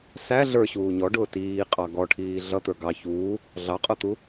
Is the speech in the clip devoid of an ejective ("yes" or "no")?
no